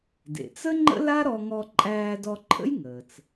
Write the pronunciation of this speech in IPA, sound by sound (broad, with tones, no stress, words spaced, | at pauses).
dḛ˩t͡sə˥ ŋ͡ǃə̰˥la˥ɾɔ˧ ŋɔ˧ǃʼæː˧dɔ˧ǃʰə̰˥j ŋəː˩t͡s